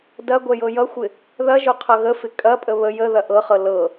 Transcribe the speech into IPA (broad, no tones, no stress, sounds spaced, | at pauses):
d ɐ ɡʷ ɛ j ɤ j ʌ xʷ ɪ | ð ɐ ʒ o qʰ ʌ ɣ ə f ɪ kʼ ɐ pʼ ə β ə j ə ð ɐ ʔ ɤ χ ɤ l ɤ